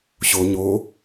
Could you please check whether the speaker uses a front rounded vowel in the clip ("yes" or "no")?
no